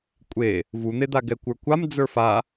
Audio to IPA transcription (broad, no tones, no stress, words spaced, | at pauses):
kʷʼe | vun̪ed̪a ɡɛkʷə˞kʷam d͡zə˞fa